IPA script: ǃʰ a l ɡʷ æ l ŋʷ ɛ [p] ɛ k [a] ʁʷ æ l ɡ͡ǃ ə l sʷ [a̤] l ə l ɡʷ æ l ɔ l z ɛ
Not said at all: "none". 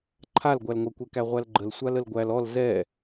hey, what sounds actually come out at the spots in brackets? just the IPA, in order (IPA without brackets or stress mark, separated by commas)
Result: kʷ, æ, a